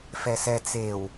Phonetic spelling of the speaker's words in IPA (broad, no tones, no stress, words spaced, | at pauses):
fɛsɛ t͡sew